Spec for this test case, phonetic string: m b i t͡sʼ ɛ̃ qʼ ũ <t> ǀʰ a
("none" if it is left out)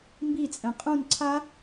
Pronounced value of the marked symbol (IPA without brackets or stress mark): n